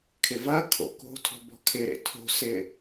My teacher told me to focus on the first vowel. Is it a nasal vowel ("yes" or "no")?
no